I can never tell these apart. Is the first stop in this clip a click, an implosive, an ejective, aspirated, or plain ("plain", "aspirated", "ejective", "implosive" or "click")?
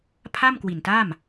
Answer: aspirated